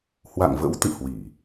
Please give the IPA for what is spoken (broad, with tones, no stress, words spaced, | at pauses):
hwa̰˧˨ŋvə̰˧˥w t̪ɨ̰˧˨hwi˧˩˨